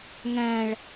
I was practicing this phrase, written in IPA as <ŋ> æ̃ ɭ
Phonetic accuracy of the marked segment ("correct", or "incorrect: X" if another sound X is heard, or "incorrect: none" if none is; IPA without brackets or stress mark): correct